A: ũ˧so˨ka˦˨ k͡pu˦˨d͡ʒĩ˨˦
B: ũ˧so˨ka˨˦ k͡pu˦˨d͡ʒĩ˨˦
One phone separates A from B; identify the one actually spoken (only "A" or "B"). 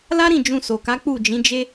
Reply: B